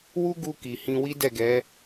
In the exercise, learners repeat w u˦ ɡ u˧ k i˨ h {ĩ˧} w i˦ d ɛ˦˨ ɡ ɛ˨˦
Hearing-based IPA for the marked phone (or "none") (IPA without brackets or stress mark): ĩ˧